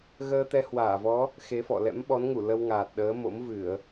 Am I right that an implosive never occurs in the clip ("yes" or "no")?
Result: no